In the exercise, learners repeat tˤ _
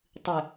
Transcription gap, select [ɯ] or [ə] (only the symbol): ɯ